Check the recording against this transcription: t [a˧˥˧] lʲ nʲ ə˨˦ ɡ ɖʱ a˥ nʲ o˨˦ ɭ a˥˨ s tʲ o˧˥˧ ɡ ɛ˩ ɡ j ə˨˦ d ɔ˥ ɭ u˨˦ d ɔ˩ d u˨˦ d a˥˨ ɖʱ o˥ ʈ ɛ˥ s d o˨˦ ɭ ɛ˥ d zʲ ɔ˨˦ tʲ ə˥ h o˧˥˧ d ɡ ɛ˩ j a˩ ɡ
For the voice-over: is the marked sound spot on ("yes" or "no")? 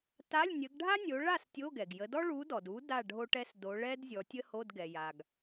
yes